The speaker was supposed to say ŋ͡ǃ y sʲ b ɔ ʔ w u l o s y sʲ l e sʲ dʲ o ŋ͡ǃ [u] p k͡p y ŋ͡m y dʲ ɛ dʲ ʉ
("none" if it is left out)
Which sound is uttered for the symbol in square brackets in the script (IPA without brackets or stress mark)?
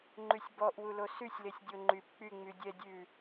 y